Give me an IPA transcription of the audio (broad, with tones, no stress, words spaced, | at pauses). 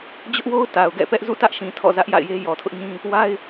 d͡ʑʊ˦ʔwo˦ʊ̯ ta˨ʊ̯ɡɛ̰˦˨pɛ˦ʔ zṵ˦˨ tä˦ʔʃĩ˨ tʰɔ̰˦˨zä˦ʔja̰˦˨ɪ̯je˦ jɔ˨tʰʊ˦ʔɲĩ˦ | wa˦ɪ̯